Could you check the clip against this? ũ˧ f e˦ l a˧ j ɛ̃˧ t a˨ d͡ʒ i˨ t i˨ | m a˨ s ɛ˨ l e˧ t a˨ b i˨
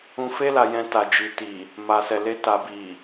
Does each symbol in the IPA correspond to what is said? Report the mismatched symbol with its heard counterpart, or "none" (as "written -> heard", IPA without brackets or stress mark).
none